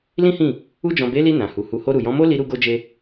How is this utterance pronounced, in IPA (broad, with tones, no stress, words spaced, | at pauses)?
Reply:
lĩ˦hĩ˦˨ | u˧d͡ʒɔ̃˨be˨˦li˧ nã˨hu˨ hu˨ho˧ ɾu˨jɔ̃˨˦mo˦ li˧ɾu˧ ɡo˧d͡ʒe˧